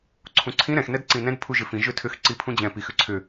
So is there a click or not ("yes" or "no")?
yes